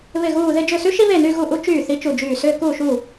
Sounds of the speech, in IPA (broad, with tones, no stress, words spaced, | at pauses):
βɪ˥˧ɣuː˥˧ ðɪ˥˧ d͡ʒʏ˥˩sy˥ʃi˥ βe˥˩ny˥˧ ɣu˥˧ʔu˥ t͡ʃyː˥˩ θi˥t͡ʃu˥˩d͡ʒyː˥˩ sʏː˥˧kuː˥˩ʃu˥˩